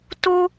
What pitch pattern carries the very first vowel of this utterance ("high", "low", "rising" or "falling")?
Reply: high